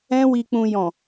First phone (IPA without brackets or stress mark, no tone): ɛ̃